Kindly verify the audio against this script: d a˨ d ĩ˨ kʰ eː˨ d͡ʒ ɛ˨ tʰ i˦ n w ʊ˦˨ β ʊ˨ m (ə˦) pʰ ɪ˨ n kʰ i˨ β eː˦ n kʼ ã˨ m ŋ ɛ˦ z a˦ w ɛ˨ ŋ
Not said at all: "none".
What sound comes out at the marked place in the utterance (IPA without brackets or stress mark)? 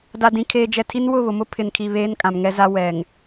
ʊ˦